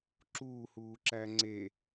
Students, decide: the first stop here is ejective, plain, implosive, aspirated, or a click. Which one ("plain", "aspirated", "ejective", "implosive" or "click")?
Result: click